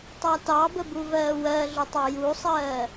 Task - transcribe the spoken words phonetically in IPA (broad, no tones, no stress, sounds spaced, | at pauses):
tˤ ɑ t ɑ b ə b u v ɜː w ɜ ɮ ʊ tˤ ɑ j u sˤ ɜː